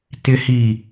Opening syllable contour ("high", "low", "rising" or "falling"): low